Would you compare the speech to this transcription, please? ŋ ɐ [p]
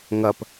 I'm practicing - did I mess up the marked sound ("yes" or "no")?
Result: no